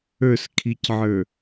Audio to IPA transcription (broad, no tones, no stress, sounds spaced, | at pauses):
ə˞ s kʰ i c ʕ ə˞